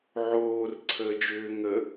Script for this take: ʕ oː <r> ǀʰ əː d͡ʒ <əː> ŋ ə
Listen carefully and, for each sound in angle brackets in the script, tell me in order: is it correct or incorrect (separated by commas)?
correct, incorrect